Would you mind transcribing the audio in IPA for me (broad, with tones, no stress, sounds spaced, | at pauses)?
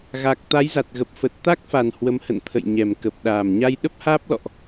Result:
ɣ a˨˩ k̚ t̪ a˨˦ j z a˨˩ t̚ ɣ ə˨˩ p̚ f ə˨˩ t̚ t̪ a˦˥ k̚ f a˨˩ n h w ə˨˦ m h ə̰˧˨ n t̪ʰ ə̰˧˨ j ɲ ɛ˨˩ m k ə˨˩ p̚ ɗ aː˨˩ m ɲ a˧ j ɗ ə˦˥ p̚ h aː˦˥ p̚ l ɔ̰˧˨ ʔ